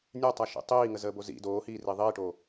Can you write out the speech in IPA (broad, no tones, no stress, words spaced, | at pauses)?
nʲœtˤaʃḭ tˤiːŋəzəːbo zḭ doːhiːri ðˤiːʈoː